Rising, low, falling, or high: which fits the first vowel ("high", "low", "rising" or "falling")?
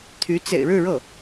rising